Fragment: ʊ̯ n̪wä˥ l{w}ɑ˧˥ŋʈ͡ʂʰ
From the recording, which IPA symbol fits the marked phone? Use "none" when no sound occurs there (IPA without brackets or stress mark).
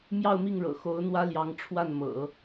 j